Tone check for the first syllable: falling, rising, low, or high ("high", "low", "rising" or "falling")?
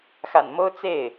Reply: low